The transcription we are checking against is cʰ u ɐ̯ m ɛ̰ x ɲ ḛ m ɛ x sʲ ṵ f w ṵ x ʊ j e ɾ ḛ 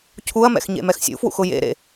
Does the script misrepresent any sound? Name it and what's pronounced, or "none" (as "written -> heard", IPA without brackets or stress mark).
e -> ḛ